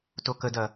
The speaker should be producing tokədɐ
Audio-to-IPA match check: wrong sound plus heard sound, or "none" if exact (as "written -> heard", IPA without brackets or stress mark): none